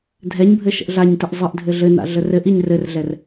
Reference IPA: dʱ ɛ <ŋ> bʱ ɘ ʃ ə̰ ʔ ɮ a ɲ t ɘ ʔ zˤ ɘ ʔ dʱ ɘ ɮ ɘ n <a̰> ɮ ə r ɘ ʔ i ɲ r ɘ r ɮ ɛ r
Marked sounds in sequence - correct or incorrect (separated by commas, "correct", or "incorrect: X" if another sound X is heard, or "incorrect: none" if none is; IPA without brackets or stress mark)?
incorrect: ɲ, correct